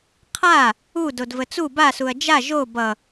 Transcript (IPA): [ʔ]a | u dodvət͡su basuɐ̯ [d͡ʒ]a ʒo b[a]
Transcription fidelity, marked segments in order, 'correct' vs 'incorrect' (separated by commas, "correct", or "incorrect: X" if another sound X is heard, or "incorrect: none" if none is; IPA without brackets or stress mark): incorrect: qʰ, correct, incorrect: ʌ